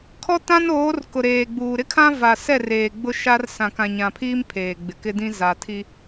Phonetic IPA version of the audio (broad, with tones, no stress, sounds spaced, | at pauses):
kʰ ɔ˦ t ã˦ n oː˨˦ r k ʊ˨ ɾ eː˨ ɡ͡b uː˨ ɾ ɪ˦ kʰ ã˦ v a˨ s ɛ˦˨ r eː˨ ɡ͡b ʊ˦ ʃ a˦ r s ã˨ k ã˨ ɲ ã˨ pʰ iː˦ m pʰ eː˨ ɡ͡b ɪ˨ k ɪ˦ d ĩ˦ z a˨ tʰ i˦